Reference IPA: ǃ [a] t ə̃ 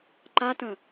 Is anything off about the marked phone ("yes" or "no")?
no